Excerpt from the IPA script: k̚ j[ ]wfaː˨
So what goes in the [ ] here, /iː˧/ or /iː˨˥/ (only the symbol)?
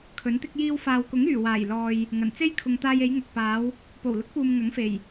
iː˧